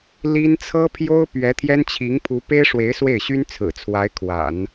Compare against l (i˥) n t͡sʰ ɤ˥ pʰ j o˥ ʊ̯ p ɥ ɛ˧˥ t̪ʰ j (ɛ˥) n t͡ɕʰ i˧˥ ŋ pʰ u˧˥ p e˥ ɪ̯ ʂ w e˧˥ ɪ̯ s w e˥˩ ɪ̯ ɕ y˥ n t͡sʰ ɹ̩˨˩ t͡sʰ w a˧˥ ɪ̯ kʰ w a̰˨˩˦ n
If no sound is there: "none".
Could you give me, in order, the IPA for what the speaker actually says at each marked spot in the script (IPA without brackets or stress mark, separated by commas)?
i˥, ɛ˥